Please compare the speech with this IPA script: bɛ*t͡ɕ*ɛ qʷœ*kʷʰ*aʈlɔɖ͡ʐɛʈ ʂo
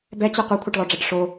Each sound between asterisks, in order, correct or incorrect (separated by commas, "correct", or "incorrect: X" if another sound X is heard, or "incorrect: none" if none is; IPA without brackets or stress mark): correct, correct